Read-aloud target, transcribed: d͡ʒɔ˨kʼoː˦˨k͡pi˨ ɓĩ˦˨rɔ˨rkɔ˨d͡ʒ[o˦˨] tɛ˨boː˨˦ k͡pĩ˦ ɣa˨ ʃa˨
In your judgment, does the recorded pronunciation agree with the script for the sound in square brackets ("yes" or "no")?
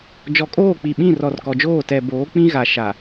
no